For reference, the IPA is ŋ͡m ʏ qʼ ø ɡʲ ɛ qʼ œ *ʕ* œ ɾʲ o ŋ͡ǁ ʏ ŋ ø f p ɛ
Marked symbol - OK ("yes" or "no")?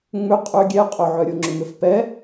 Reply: yes